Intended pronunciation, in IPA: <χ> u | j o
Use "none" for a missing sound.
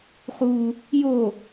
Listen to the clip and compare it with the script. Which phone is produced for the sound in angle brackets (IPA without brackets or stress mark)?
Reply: χ